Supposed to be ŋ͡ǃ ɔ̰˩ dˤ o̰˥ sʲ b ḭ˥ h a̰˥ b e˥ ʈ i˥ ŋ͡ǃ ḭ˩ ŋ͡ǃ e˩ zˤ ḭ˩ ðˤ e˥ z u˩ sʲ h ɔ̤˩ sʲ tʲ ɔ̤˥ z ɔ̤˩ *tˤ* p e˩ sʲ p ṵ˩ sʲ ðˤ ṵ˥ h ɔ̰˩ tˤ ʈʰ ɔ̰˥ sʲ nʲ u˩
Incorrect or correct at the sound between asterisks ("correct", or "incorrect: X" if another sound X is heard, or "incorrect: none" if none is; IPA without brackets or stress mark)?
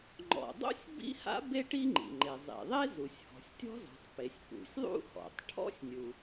correct